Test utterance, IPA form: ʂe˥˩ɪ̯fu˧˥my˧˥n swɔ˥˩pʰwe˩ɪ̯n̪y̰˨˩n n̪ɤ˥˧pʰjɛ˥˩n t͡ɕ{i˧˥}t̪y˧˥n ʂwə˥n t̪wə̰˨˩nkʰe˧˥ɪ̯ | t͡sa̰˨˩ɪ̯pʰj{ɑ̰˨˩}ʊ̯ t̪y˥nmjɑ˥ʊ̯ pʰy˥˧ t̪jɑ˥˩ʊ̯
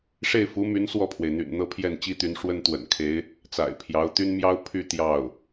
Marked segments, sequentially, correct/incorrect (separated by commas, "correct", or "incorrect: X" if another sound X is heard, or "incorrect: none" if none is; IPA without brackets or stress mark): incorrect: i˥, incorrect: ɑ˧˥